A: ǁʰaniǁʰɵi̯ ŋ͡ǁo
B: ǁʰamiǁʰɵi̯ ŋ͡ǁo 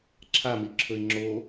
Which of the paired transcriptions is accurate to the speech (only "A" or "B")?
B